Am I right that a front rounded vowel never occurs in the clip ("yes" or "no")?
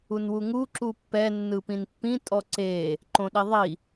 yes